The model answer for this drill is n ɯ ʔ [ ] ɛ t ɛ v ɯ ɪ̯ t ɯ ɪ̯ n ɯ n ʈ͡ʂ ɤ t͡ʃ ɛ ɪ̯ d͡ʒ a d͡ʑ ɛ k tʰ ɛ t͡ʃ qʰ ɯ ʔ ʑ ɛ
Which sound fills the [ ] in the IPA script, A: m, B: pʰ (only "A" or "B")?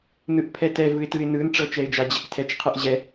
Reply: B